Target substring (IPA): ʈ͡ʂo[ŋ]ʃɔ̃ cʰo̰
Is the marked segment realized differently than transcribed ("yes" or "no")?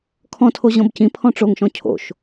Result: no